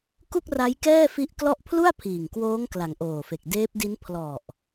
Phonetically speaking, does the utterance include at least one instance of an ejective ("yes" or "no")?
no